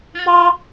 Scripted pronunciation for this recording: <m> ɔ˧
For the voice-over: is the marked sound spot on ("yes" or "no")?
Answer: yes